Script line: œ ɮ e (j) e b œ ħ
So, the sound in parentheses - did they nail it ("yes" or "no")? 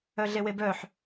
no